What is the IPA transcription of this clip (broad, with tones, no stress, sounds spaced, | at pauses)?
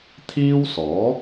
t̪ʰ iː˥ w s ɔː˨˥